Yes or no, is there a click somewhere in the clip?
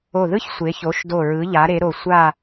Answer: no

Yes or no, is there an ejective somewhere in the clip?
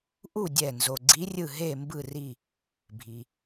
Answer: no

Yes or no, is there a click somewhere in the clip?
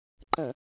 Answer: yes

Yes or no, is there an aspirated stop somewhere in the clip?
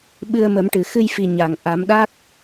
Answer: no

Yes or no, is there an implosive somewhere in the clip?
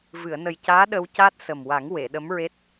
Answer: yes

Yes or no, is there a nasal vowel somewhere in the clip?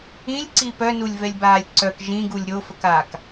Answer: yes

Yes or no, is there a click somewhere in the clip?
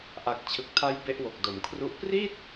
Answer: no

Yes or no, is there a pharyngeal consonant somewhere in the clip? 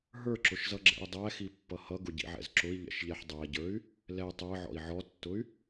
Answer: yes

